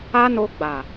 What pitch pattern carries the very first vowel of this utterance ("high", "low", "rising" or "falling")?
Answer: high